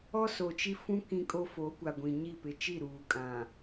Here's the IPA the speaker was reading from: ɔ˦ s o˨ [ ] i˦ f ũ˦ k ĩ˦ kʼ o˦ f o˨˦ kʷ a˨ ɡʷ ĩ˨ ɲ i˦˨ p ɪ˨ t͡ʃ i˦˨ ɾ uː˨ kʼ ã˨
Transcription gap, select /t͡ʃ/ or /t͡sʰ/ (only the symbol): t͡ʃ